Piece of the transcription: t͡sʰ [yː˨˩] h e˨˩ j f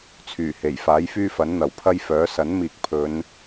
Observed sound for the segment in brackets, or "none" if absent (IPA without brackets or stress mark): yː˨˩